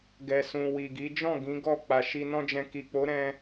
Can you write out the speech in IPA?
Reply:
ɡɛ˨sũ˨ wi˨ɡi˨˦ d͡ʒɔ̃˦˨ ɡĩ˨˦ɡɔ˦˨ k͡pa˨ʃi˧nɔ̃˦d͡ʒɛ̃˧ ki˨k͡po˨˦ɾɛ̃˧

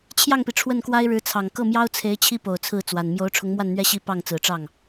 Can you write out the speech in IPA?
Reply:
t͡ɕʰjɑ˥˩ŋpi˩ ʈ͡ʂʰwə˥˩nkwa˥ɪ̯ɻɻ̩˧˥t͡sʰɑ˨˩ŋ kɤ˥˩mjɑ˥ʊ̯t͡sʰe˧˥ɪ̯ t͡ɕʰi˥po˨˩ʊ̯ t͡sʰɹ̩˥˩t͡swa˨˩n mjo˧˥ʊ̯ʈ͡ʂʰʊ˧˥ŋ mwa˥˧nn̪ɥɛ˥˧ɕi˥˧ pɑ˥˩ŋt͡sɹ̩˨˩ʈ͡ʂɑ˥˩ŋ

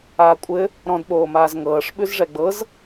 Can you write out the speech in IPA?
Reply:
aːkʷʼɘ | ɾɔ̃dɓoːmaːz ŋɤːʂɓʉz ʐɛɡ͡bɤz

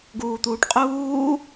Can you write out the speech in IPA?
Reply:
ɡuːt̪uːʈqʼuː

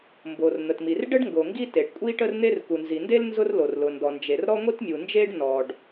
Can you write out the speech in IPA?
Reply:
mbo˩rn̪ə˩tmi˩r ɖə˥ɖŋɡo˩ ŋɡi˥te˩ɖ kʷʼi˥ʈə˥rn̪e˥r ku˩nzi˩nde˥l nzʊ˥r lo˩rlʊ˩ndɔ˩nd͡ʒe˩r ɾɔ˥ŋʷi˥tmʲu˩nd͡ʒe˥ɖ nɔ˩ɖ

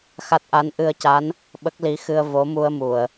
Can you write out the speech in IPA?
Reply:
xa˦˥t̚ʔa˧˥n ʔɨ˧ə̯ca˧˥n | ɓə˦˥k̚li˧˥xɨ˧ə̯ vo˧˥mu˧ə̯mu˨˩˨ə̯

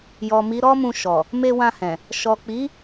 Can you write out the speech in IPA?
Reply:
jɔ˨mi˨˦ɾɔ˦mũ˧ ʃɔ˨ | me˧wã˧hɛ̃˨ | ʃɔ˨k͡pi˨˦

